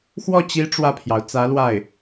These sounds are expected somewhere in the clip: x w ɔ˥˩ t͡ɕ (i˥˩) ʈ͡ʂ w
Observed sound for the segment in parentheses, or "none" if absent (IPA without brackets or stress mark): i˧˥